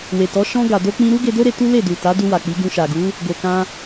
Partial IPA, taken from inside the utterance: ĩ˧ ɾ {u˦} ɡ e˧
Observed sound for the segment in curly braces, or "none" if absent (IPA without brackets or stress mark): u˦